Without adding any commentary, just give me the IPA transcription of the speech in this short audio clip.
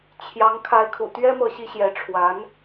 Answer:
t͡ɕʰjɑ˧˥ŋ kʰa˧˥ɪ̯kʰṵ˨˩t̪ɥɛ˥ mɤ˥˩ɕi˥ ɕjɛ˧˥ʈ͡ʂʰwa˧˥n

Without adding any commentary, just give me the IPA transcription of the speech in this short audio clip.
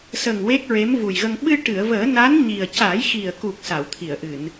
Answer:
sə˨˩ŋ we˦˥k̚ɹe˧˥mvu˨˩jɣə˧ŋ ɓɨ˧ʈɨ˨˩˨ə̯vəː˨˩˦ na˧˥n ɲi˨˩ə̯ ca˨˩˦jxi˨˩ə̯ku˨˩k̚ sa˨˩˨wt̪ʰi˨˩˨ə̯ʔɨ˨˩˨n

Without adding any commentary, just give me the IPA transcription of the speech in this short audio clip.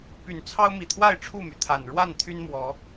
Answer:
py˨˩nt͡sʰɑ˦ʊ̯mi˨˩t̪ʰwa˥˨ɪ̯ ʈ͡ʂʰu˥˨my˩t̪ʰa˨˩n ɻwa˥˨n t̪ʰy˦nmwɔ˨˦

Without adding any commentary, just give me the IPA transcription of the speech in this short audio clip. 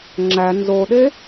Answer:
ŋ͡ǁæ nzoɗe

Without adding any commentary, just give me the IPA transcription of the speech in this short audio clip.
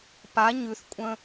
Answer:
pa ɲʉθkʷʼə̃

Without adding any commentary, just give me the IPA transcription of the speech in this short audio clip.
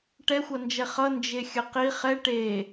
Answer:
ʈɛxʷʌnd͡ʒɛ χʌ nd͡ʒexʲəqi χɛ ʈe

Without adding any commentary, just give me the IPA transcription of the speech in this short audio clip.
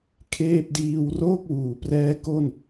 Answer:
kʰeː˥˩p̚diː˧w roː˥˩k̚wuː˩˦ prɛː˦˥ko˥˩n

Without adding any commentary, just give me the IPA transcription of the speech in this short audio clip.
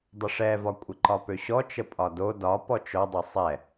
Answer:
dˤəʂɛvɒ kʷʼɪǃɒpøɕɔ t͡ʃəpʼɒdo dɒ pɔt͡ʃɔdˤɛ sˤɛ

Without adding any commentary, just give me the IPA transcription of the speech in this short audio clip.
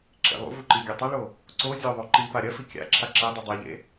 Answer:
ǁḛlˠṵvu ǃiɡʲɵtˤɐɭo | ǀo zʲoðˤo ǃipa ɾʲɐfi kʲa̰ ǁʰaǁedˤɨ dˤʉʎḛ

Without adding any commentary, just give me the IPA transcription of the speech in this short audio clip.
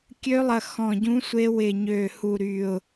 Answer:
kʲø˧˥lˠɐ˧˩ xɔ̃˧˩ɟũ˧˥sʷe˧˥ wɪ˧˩ ɲø˧˩hu˧˩ɾy˧˩ʊ̯

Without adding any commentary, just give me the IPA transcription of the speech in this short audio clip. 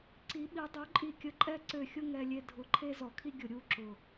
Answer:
ǀi˧˥ɓi˧˥ dˤø˧˥ǃʼi˦˨kʲə˦˨ ǃʼɛ˥ǀø˦˨xʲʊ˥ ŋɛ˥lʲe˥ dʱʊ˧˥ǃʰe˥ zɔ˧˩˧kʰi˥ɡʲʊ˧˩˧ ɾʲu˧˥ǁʊ˨˩

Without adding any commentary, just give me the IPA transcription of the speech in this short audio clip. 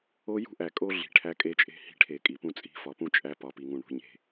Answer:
o˦ jṳ˦ʔæ˨kʼo˦ ɮi̤˨ʈʰæ˦kʼe˦t͡ʃʼe̤˦ hi̤˦ʈʰe˨kʼi˨pũ˦ t͡sʼi̤˦fɒ˨pũ˦ t͡ʃʼæ˦ pɒ˨pi˨ŋũ˨ ɳṳ˨ ɲe̤˦

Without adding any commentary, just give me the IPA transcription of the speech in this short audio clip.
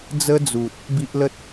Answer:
d͡zə˧d͡zu˨t̚ | bi˦ʔlə˦t̚

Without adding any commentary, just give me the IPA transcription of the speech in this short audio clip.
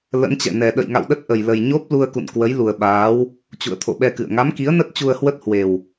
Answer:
lə̰˧˥nt͡ɕɛ̰˧˨ nɛ˨˩ ɗə̰˧˨jŋa̰˧˨wɗə˦˥t̚ ʔə˨˩jlə˨˩j ɲo˦˥p̚ lu˧ə̯kṵ˧˨n kwə˨˦jlu˨˩ə̯ ɓaː˨˦w | t͡ɕṵ˧˨ə̯t̪ʰo̰˧˨ɓɛ˧kɨ̰˧˨ə̯ ŋa˨˦mki˨˦ə̯nə˦˥t̚ t͡ɕu˧ə̯hwə˦˥t̚ hwe˨˩w

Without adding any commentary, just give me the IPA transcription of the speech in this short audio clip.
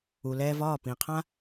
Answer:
u˩lɛː˧vɒː˥˩ pĩ˩qʰã˥

